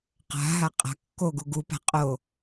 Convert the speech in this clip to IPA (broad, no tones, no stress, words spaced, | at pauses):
qa̤ɦaqʼa̤ kːoɡu ɡupa̤qʼo